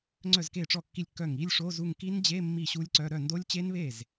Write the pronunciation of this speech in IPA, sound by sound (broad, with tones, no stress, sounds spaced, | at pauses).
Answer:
ŋ͡ǀ œ˥˩ z k e˥˩ ʈ͡ʂ ɔ˥˩ kː i˥˩ lʲ kː œ˥˩ ŋ i˧˥˧ lʲ ʂ o˧˥˧ z u˥˩ ŋ k i˦˥ n d͡ʑ e˧˥˧ mː i˥˩ ɕ u˦˥ lʲ ǀ œ˧˥˧ ɾ œ˥˩ n d o˦˥ lʲ t͡ɕ e˦˥ n β e˥˩ z